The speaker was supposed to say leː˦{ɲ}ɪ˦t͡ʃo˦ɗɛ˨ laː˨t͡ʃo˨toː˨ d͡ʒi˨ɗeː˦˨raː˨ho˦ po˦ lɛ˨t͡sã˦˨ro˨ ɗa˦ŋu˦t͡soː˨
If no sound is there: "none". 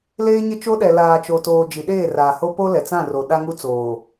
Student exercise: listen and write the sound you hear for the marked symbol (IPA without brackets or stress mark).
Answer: ɲ